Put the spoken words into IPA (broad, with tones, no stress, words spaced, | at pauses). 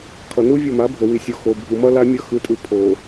kʰʌ˨nu˦ vʲo˦˨ma˨˦bʱo˨ wi˨sʲo˨ xo˨bʱu˨mʌ˦ la˦mʲʌ˦˨ xɯ˨tʼɯ˨ pʰo˨